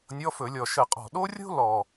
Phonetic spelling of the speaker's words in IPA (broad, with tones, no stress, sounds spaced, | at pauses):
nʲ ɔ˧˥˧ f ɵ˧˩˧ lʲ ɔ˨˩ ʃ ə˧˩˧ qʼ ɔ̤˨˩ ɗ o˥ rʲ o̤˥ l ɔ˨˩